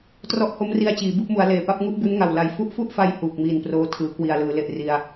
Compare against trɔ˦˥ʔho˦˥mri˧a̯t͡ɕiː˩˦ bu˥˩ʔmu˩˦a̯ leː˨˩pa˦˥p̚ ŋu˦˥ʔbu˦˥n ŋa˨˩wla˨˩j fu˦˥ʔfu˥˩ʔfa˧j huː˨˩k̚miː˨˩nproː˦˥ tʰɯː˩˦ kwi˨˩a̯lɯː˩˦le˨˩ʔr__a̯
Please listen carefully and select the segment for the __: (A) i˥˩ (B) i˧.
B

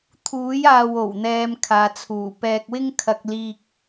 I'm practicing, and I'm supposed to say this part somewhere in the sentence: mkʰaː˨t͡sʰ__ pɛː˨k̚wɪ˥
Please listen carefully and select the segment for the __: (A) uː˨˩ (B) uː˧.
A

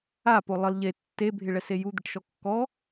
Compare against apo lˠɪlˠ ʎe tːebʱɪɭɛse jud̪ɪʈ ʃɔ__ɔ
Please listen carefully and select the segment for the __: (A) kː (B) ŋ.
A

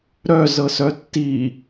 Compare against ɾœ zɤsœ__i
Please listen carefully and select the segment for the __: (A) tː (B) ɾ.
A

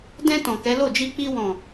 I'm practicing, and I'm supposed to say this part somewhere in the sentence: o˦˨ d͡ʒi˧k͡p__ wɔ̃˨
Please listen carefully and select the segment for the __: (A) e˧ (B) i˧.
B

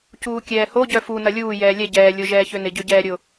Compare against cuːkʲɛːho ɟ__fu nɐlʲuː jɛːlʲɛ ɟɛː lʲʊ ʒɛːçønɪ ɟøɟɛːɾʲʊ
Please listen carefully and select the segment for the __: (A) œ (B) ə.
A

